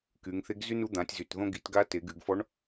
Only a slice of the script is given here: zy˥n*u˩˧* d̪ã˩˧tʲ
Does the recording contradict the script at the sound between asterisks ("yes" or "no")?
yes